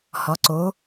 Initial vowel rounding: rounded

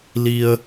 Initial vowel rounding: unrounded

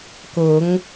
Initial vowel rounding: rounded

